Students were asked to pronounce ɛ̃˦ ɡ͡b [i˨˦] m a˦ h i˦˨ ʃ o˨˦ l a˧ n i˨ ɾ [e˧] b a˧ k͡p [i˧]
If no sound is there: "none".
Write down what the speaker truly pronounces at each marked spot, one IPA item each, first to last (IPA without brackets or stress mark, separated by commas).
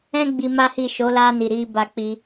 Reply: i˧, i˧, i˧